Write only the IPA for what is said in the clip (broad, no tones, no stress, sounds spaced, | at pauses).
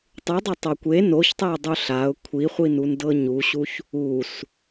tˤ ɯ dˤ o tˤ o kʷ e n o ç tˤ ɛ ʊ̯ dˤ u ɬ a ʊ̯ kʷʰ i χʷ i n u n d ɤ ɲ u ɕ u ç | u s